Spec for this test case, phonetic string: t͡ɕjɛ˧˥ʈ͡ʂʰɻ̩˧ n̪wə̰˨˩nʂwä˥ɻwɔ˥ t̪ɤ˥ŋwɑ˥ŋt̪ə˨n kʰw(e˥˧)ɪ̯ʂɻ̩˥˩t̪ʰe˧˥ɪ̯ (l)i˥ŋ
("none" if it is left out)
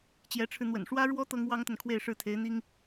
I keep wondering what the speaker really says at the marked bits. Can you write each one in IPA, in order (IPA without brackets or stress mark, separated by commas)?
e˥˧, n̪